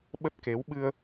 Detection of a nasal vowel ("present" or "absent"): absent